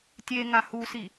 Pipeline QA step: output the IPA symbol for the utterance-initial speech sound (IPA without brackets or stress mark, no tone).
tʲ